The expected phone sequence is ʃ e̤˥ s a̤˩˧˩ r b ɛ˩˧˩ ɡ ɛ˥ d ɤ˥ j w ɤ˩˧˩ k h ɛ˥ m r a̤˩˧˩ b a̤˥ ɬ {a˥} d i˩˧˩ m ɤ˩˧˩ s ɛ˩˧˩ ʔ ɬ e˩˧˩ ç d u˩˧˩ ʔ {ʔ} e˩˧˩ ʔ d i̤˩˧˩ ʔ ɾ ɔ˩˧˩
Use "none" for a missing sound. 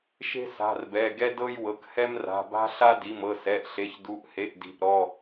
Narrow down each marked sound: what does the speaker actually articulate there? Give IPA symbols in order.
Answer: a˥, h

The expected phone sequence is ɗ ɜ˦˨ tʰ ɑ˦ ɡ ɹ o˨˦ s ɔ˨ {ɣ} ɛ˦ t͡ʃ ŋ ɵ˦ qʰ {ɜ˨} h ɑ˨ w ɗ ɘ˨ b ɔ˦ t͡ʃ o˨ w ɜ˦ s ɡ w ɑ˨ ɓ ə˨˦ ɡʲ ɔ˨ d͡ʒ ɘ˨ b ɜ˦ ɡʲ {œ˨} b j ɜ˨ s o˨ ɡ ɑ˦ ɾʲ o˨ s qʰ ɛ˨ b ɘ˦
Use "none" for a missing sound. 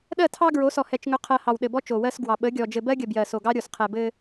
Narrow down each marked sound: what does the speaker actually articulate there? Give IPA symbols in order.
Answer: h, ɜ˦, ə˨

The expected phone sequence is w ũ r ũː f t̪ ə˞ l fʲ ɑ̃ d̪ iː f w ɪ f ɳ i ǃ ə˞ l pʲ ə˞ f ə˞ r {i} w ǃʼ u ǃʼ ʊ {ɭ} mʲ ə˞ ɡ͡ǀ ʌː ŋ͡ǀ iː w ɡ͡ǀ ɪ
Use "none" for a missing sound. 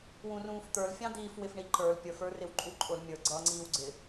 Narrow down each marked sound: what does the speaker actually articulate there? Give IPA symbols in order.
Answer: ɪ, l

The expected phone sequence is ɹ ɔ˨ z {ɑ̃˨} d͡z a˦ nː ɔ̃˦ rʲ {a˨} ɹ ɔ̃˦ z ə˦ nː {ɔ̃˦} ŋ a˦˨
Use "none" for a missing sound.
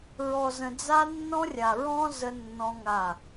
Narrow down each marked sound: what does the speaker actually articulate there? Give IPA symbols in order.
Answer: ə̃˨, a˨, ɔ̃˦

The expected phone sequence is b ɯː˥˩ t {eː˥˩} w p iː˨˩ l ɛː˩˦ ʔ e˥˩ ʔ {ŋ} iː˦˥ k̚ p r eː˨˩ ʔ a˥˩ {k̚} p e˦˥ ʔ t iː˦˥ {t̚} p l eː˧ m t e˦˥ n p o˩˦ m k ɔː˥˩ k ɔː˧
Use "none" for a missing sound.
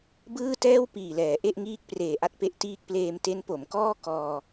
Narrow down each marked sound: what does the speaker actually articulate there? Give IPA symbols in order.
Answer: ɛː˥˩, ŋ, t̚, k̚

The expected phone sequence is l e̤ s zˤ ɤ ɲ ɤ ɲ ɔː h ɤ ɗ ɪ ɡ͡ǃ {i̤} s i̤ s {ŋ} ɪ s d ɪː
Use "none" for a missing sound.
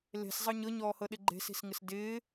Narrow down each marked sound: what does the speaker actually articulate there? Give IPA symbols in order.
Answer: e̤, ŋ

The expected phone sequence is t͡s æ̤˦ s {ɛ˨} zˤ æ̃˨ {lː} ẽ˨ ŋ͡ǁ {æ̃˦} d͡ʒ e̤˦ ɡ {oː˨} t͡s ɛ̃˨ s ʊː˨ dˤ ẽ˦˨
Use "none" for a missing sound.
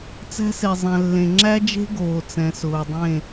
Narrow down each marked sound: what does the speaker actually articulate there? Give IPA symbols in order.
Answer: e˨, lː, æ˦, oː˨

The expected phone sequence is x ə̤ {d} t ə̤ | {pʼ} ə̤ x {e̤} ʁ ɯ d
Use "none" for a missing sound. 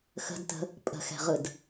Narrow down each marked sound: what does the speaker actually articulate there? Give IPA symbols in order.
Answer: d, pʼ, ɛ̤

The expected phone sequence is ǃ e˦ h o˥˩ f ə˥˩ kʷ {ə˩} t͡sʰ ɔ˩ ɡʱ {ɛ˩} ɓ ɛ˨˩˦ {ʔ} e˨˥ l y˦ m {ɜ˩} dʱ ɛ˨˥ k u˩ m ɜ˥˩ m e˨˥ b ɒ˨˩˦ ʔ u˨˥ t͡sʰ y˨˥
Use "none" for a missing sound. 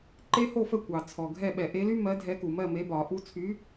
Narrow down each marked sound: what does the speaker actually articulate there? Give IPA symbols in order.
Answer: ɑ˩, ɛ˥˩, ʔ, ɜ˨˥

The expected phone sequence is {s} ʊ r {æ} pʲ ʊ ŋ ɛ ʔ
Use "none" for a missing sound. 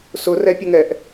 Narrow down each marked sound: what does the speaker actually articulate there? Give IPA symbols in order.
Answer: s, ɛ

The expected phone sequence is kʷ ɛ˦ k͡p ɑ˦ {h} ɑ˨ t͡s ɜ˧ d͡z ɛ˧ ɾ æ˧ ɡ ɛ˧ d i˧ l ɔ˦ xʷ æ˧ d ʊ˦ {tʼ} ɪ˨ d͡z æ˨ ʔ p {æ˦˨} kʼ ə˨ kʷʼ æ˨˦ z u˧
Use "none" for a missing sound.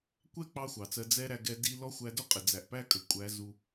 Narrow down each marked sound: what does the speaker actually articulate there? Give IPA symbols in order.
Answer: xʷ, qʼ, æ˦

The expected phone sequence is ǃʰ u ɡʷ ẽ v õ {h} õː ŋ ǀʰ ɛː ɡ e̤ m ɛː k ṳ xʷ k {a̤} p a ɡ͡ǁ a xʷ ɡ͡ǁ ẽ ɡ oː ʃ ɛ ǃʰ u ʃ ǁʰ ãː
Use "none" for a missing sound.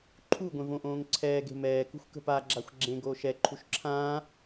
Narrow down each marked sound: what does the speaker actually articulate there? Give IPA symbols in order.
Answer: ʔ, ə̤

